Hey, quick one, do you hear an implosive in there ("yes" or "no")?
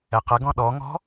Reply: yes